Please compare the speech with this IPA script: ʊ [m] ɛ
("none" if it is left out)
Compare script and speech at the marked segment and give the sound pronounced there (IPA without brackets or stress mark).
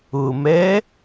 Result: m